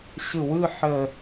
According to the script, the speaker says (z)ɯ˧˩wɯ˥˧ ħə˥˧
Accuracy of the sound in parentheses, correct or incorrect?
incorrect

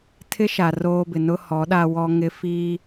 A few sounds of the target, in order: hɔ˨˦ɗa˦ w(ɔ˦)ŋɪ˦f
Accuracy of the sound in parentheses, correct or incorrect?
correct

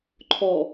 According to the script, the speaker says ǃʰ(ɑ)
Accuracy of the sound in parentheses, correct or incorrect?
incorrect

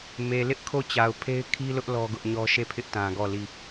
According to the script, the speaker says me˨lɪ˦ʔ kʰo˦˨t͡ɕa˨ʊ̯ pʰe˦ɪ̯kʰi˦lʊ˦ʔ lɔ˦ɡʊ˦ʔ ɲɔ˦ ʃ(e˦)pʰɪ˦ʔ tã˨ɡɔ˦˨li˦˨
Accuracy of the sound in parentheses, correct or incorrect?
incorrect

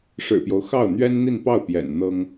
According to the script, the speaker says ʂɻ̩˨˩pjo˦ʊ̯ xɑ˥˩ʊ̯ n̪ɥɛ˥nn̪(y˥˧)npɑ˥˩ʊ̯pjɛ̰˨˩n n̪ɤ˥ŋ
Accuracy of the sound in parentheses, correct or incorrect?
incorrect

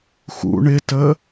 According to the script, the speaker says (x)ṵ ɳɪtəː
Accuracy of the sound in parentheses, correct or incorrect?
correct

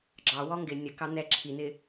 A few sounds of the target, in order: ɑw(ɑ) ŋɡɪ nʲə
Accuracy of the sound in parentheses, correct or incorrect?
incorrect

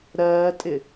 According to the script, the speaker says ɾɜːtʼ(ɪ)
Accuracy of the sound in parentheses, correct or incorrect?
correct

